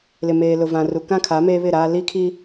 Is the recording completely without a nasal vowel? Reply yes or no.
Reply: no